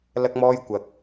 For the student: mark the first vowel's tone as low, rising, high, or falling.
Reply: high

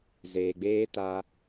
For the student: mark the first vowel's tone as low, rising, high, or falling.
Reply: low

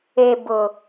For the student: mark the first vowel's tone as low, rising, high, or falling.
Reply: low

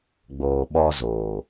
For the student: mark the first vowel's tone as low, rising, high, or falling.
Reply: low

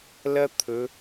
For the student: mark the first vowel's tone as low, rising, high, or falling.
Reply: high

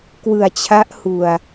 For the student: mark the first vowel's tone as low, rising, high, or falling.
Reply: low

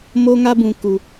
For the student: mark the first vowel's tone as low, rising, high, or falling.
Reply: high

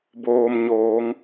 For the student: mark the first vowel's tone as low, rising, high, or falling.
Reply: low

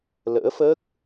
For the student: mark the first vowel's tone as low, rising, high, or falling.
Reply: rising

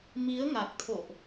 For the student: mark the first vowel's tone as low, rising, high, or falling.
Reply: rising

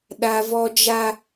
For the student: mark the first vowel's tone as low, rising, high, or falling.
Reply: high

